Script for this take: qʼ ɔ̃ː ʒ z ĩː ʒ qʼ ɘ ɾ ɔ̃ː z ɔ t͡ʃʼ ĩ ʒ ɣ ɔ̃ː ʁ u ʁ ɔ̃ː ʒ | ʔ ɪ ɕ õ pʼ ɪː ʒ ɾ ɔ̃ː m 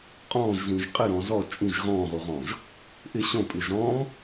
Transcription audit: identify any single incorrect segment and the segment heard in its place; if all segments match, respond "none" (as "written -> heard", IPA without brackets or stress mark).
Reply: none